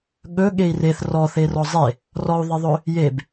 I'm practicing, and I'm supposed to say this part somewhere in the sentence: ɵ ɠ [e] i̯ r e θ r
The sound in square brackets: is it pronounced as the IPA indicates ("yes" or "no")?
yes